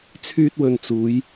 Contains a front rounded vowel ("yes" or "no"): yes